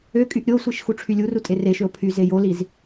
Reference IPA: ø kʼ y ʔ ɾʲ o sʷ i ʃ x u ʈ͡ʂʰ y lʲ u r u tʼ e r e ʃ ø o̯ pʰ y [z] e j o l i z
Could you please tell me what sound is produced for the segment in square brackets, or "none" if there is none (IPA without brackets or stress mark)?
z